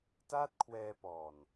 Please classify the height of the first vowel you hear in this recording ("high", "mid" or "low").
low